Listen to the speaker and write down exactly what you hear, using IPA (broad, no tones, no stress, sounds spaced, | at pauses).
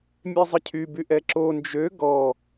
mʲ e zˤ ə cʰ y b y ʔ ɛ ǁ o n d͡ʒ ø ɡ ɔ